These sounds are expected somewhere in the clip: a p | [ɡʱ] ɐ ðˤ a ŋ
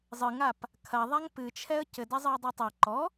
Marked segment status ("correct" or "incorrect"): incorrect